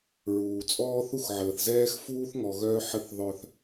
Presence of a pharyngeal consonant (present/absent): present